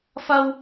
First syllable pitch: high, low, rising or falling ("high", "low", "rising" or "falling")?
high